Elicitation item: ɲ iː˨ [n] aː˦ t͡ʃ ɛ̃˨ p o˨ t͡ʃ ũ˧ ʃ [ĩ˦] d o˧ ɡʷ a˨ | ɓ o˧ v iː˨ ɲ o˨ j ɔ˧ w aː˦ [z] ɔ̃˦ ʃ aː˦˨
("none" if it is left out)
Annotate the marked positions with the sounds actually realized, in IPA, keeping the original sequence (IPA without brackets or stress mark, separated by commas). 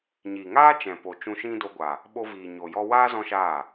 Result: ŋ, ĩ˦, z